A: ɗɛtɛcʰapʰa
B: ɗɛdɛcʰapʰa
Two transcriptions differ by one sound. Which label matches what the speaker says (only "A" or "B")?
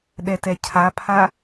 A